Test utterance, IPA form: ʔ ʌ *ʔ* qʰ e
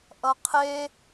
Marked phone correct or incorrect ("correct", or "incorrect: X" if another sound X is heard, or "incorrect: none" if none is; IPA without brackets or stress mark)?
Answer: incorrect: none